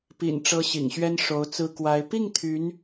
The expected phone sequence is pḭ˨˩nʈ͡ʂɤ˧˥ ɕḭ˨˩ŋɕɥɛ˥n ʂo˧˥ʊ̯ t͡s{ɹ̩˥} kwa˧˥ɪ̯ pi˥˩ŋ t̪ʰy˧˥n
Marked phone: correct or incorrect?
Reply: correct